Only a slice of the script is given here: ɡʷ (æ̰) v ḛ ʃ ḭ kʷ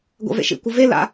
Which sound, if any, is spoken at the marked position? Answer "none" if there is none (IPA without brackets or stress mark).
ɛ̰